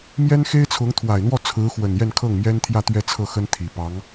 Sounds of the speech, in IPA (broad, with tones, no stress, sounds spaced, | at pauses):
m j ɛ˥ n x e˥ ɪ̯ t͡sʰ ʊ˧˥ ŋ t̪ʰ w a˨˩ ɪ̯ n̪ w ɔ˥˩ t͡sʰ ɹ̩˧˥ x w ə˨˩ n j ɛ˥˧ n kʰ ɤ˥˩ ŋ m j ɛ˥ n t̪ʰ j ä˥˧ t̪ ɥ ɛ˥˧ t͡sʰ ɤ˥˩ x ə˥ n t̪ʰ i˨˩ p ɑ˧˥ ŋ